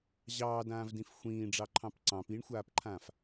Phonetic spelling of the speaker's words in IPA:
ʑ ɑː d ãː v d ĩ f xʷ ĩː ɖ͡ʐ ɑ ǃʰ ɑ̃ p ǀ ɑ̃ p i ɳ xʷ aː p ǃʰ ãː f

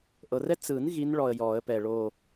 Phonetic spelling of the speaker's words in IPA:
ʔ ɤ˨ r ɛ˥ t͡s ɯ˨˩˦ n ɣ i˧˥ n ɭ ɔ˨ ə̯ j ɔ˨˩˦ ə̯ p ɛ˨ ɭ o˥˧

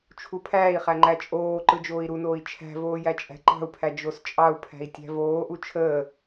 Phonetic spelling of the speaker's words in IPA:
t͡ʃʰ u pʰ æː i̯ χ æ ŋ͡ǃ æ t͡ʃʼ oː ǃ ɯ d͡ʒ oː i̯ ɾ u n oː i̯ t͡ʃʰ æ̤ v oː j æ t͡ʃʼ æ̤ ǃ ɑ̤ u̯ pʰ æ d͡ʒ o s t͡ʃʼ ɑ u̯ pʰ æ̤ i̯ tʲ æ̤ v oː ʔ u t͡ʃʰ əː

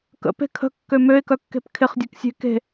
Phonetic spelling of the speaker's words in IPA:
k ə̰ p e̤ kʰ ə̤ kː ø m ø ɪ̯ k œ kː e̤ p kʰ ɪ χ dʲ ø k sʲ e̤ k e̤

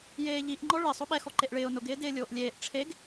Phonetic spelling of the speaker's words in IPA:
j eː ʎ i ʔ ŋ͡ǃ ɔ ɭ ɪ sˤ o ɓ ɛ x ɔ ǃ e ʔ ɭ ɪː ʊ̯ n ʊ ɡ ɪː d ɪː lʲ oː ʔ lʲ eː ʔ ʈ͡ʂʰ e ɡ

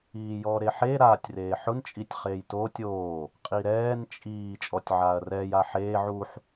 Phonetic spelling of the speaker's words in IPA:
iː j ɔ ɾ e ħ e ɾ aː tʲ r eː ħ ʊ n t͡ʃʼ i tʲ χ eː j t oː tʲ oː | qʼ i ɾ ɛː n t͡ʃʼ iː t͡ʃʼ ɔ tʲ ʕ aː ɐ̯ r ɛː j a ħ eː ʕ u ħ

